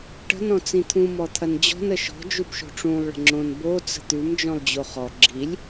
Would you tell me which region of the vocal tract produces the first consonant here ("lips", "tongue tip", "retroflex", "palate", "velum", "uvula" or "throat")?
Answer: retroflex